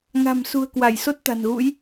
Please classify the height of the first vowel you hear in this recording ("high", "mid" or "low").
low